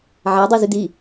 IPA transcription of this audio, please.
ʕædˤi zydi

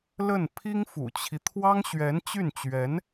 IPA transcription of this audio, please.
lə˥˩n pʰi˥ŋfṵ˨˩t͡ɕʰi˦ t̪ʰwɑ˥ŋɕɥɛ˧˥n t͡ɕy˥˩nt͡ɕɥɛ˧˥n

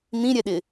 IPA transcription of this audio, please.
n̪ĩɾʲɛɗɪ

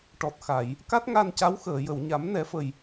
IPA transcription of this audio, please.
ʈɔ˨˩t̚xa˨˩˨j | ka˦˥t̚ŋa˧nca˧˥wxəː˨˩˨ jə˨˩˨wɲa˨˩˦m nɛ˨˩˦fə˨˩j

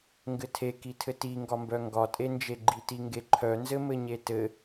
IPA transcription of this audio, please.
ŋɡɘtʰekitʰɘ tiŋɡɒmbœ ŋɡɒtʼend͡ʒe ɡ͡ǃitiŋɡeǃʰœ nzɘmɘɲetɘ

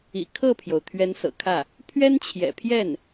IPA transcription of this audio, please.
ḭ˨˩ kʰɤ˥˩pʰjo˩ʊ̯ t̪ʰɥɛ˧˥nsɤ̰˨˩kʰä˥˩ | pʰɥɛ˥nt͡ɕʰjɛ̰˨˩pʰjɛ˥˩n

